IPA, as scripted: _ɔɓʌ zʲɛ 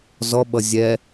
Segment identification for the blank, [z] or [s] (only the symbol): z